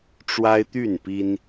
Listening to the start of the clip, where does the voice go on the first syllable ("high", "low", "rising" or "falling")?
high